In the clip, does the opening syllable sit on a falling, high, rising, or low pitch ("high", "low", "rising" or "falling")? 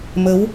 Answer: rising